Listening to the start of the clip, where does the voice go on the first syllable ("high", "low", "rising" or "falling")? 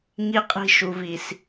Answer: high